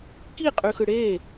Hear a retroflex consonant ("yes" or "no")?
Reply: yes